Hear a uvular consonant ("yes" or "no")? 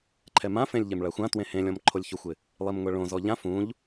no